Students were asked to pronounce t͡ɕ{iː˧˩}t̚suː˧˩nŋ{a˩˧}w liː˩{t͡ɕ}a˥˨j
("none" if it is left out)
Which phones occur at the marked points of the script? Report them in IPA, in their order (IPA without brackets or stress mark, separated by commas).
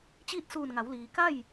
iː˥˨, a˩˧, k